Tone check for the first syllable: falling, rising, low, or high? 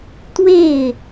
falling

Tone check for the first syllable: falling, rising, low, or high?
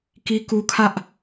high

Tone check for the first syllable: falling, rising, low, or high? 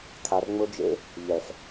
low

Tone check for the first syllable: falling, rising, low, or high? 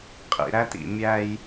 low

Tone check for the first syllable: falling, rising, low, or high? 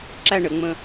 falling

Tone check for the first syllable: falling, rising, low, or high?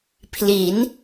rising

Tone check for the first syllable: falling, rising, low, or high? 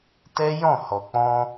high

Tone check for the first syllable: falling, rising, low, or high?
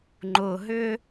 low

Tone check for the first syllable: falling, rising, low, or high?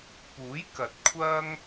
rising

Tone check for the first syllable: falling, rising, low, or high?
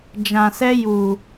low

